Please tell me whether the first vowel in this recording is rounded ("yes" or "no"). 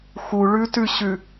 yes